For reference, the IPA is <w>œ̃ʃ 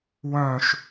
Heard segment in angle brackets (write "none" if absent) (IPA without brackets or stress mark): w